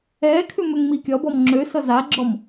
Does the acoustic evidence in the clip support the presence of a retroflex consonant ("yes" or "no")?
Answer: no